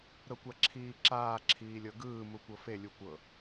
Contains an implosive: no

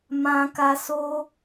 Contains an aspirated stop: no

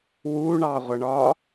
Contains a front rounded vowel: no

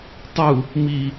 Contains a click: no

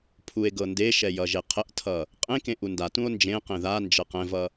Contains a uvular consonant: yes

